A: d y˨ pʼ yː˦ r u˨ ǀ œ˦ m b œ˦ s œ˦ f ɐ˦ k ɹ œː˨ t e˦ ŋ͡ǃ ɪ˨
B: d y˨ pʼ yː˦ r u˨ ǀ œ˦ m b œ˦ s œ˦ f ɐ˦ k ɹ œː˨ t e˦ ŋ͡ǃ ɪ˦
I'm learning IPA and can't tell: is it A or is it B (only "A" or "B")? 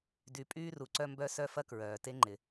A